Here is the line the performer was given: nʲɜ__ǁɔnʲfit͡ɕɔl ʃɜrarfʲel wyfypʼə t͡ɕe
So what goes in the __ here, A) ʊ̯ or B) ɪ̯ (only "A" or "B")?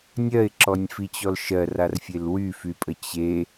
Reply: B